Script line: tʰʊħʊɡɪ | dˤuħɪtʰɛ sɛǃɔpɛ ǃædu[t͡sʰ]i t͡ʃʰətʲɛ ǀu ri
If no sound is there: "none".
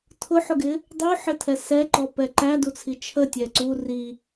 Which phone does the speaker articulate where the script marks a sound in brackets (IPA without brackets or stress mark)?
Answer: t͡sʰ